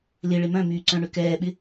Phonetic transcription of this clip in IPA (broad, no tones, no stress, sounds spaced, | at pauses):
l ɪ ɭ ɪ m œ̃ m yː ǀ œ̃ ɳ ʏ k ɛː ɓ ɪ